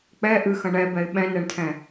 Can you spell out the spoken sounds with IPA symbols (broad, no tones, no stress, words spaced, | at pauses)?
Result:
k͡pɛ ʔɨxɐ̃ ɳɛbɛɪ̯ ɓɛ̃nɛɳtʰɛ̃